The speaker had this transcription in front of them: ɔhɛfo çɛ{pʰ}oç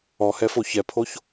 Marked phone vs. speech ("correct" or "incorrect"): correct